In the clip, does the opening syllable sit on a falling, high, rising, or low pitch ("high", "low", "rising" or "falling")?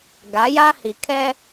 rising